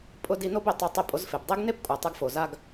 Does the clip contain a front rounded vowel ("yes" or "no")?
no